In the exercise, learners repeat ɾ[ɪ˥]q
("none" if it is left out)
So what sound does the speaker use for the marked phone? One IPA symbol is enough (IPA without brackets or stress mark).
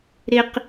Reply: ɪ˥